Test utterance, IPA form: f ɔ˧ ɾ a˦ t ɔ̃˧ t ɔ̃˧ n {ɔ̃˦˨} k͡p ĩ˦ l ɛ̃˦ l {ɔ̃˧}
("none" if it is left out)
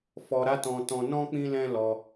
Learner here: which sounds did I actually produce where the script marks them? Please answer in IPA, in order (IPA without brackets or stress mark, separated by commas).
ɔ̃˦, ɔ˧